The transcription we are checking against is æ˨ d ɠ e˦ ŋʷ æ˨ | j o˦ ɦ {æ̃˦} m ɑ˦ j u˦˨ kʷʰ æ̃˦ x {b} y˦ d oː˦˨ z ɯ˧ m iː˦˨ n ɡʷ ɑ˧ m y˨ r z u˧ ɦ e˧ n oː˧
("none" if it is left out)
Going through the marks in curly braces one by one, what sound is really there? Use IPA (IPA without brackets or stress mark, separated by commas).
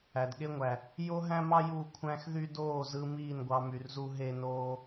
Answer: æ̃˦, ð